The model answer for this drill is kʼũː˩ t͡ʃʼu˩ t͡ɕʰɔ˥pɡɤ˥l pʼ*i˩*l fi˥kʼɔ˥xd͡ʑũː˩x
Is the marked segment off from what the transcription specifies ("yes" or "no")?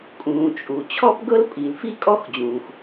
no